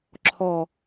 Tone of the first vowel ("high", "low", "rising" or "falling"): low